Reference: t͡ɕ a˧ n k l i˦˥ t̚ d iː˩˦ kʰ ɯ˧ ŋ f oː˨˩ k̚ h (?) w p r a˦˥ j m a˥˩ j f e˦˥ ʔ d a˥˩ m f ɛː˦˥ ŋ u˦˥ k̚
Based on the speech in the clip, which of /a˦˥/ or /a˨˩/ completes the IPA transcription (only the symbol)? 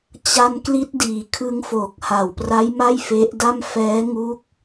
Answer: a˨˩